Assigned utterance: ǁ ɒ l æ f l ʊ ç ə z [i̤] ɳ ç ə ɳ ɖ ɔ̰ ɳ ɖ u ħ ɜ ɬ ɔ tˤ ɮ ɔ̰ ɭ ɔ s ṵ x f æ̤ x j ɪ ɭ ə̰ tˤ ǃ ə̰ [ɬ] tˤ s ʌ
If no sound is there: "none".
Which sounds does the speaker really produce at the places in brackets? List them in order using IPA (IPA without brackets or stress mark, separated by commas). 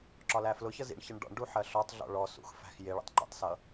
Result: ḭ, none